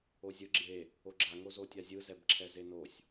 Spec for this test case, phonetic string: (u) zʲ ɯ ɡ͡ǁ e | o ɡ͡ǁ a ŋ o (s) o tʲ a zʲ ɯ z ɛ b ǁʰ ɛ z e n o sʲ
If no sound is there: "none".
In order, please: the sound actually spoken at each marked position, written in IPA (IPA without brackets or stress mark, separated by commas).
o, z